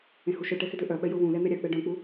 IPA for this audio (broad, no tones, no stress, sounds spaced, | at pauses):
ẽ h u ʃ œ ʈ ɛ x ɪ d ø ʔ œ ɓ ɛ j ʊ w ũ l ɛ n̪ ɛ ɾʲ a k͡p ɛ ɖ œ̃ k͡p u